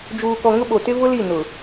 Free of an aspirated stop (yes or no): yes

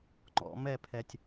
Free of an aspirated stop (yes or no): no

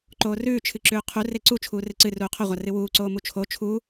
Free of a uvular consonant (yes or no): no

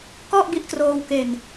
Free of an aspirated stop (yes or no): yes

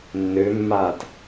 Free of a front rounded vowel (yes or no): no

